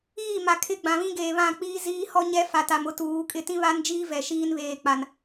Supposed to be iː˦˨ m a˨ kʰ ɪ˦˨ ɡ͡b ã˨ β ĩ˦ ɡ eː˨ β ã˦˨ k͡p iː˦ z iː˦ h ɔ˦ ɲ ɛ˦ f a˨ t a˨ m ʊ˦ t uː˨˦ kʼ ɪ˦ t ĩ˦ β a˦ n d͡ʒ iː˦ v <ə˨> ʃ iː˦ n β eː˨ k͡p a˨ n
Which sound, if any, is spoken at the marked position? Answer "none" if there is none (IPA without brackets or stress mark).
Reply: ɛ˨